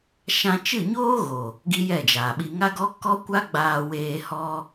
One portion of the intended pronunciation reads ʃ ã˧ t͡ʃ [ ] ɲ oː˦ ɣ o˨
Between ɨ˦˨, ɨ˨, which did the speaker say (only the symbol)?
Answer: ɨ˦˨